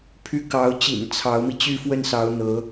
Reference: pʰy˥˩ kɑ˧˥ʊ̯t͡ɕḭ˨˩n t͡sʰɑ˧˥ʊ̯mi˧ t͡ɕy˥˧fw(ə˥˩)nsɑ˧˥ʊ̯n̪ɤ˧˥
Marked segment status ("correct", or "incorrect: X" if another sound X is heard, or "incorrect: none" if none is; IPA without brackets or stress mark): correct